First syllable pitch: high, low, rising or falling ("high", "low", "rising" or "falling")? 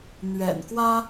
low